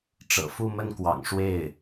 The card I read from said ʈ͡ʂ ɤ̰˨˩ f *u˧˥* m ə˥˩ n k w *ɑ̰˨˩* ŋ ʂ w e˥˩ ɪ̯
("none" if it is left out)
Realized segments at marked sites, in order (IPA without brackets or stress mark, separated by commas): u˥˧, ɑ̰˨˩